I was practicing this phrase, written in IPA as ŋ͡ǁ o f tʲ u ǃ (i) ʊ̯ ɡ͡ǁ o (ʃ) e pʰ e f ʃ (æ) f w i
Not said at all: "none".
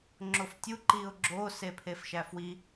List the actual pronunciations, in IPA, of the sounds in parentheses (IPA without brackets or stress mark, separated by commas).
i, s, æ